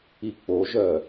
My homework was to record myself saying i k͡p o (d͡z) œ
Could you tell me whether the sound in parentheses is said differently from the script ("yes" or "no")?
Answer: yes